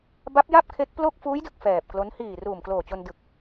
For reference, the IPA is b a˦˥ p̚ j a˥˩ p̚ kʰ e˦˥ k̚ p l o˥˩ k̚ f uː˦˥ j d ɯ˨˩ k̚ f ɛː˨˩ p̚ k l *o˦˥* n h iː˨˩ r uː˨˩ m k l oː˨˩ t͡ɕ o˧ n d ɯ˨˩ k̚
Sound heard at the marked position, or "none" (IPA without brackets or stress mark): o˦˥